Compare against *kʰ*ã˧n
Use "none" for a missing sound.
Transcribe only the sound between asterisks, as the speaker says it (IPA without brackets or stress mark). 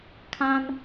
kʰ